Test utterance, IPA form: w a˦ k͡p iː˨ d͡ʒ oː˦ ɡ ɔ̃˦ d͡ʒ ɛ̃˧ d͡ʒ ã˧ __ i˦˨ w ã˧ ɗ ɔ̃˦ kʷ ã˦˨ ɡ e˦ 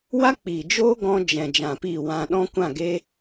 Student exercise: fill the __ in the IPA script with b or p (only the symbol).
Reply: p